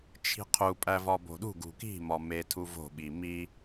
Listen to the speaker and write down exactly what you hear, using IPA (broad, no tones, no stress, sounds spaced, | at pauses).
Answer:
t͡ʃʰ i̤ qʰ u pʼ æ v ɒ b o̤ ɗ ṳ ɡ ṳ k i̤ m ɒ m e tʰ u v o̤ ɓ i m i